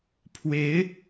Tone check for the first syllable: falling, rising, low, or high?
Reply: rising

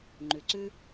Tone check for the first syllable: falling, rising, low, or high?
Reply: low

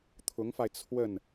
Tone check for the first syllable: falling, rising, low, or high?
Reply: rising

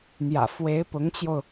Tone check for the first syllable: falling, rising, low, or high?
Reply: low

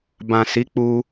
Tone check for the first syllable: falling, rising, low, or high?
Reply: low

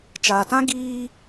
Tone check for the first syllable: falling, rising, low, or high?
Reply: low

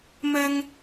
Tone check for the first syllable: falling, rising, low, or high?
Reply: high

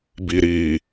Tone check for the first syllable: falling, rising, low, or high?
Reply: low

